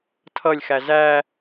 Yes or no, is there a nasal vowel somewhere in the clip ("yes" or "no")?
no